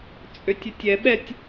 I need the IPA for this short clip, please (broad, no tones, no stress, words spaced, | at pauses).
t͡sʼøtʲɛtʲɛɓɛtʲ